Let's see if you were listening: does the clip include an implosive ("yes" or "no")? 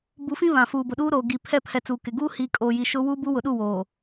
yes